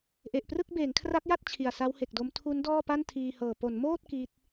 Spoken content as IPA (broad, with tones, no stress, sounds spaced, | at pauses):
ʔ e˨˩ ʔ p r ɯ˥˩ k̚ b eː˩˦ ŋ kʰ r a˦˥ k̚ j a˥˩ t̚ t͡ɕʰ i˨˩ a̯ s a˦˥ w h e˨˩ k̚ d o˦˥ m tʰ u˦˥ n d ɔː˥˩ p a˥˩ n tʰ iː˧ h ɤː˨˩ p o˩˦ n m oː˥˩ t̚ k i˦˥ t̚